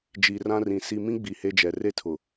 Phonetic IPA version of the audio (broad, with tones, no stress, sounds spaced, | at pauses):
d͡ʒ i˨ r ã˦ r ĩ˨ s i˨ m ĩ˦ ɡ͡b i˨ h e˦ d͡ʒ ɛ˨ r e˦ tʰ ʊ˨